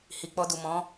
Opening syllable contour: low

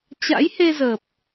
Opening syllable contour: rising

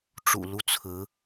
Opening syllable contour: low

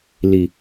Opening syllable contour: low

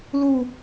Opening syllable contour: falling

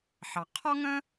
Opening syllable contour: low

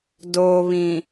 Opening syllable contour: low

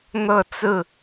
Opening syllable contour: falling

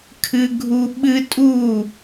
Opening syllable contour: high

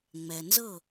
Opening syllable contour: low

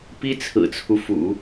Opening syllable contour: high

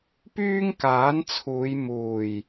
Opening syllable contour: high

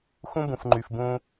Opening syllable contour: high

